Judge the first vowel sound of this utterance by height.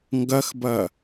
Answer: low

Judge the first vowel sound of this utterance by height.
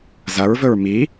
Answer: low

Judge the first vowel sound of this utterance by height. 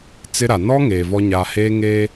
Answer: high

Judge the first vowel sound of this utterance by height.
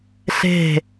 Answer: mid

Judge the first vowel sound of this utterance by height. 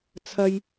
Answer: low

